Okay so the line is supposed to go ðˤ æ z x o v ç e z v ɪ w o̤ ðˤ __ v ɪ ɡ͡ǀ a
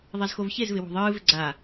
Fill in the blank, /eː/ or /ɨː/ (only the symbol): ɨː